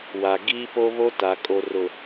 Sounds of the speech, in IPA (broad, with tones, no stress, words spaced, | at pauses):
wa˨ ɡiː˦po˦βo˦ ta˨kʼo˨ rʊ˨